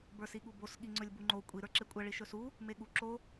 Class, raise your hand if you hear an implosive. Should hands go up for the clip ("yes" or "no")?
yes